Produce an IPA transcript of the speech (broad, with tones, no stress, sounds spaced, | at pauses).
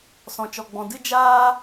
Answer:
s ɔ̃˨ t͡ʃ ɔ˨ ɡ͡b ɔ̃˨ d ɨ˦ d͡ʒ aː˦